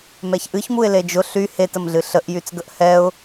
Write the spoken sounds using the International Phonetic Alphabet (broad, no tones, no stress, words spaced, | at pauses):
mɛçʔɨç muɪ̯led͡ʒʊ ɬy hetəmɮɨ ɬəʔjyt͡sɡəʔ hɛʊ̯